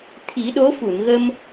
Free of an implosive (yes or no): no